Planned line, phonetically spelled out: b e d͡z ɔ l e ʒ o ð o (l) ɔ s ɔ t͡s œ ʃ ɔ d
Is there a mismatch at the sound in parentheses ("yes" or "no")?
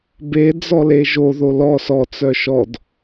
no